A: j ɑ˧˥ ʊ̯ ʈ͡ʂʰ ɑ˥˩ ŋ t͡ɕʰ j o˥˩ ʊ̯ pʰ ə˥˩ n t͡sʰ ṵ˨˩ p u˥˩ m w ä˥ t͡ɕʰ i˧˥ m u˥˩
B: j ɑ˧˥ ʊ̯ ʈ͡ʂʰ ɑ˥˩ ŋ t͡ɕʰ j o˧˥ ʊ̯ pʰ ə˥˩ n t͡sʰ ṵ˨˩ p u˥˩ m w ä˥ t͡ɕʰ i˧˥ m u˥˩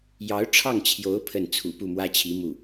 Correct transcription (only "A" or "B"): B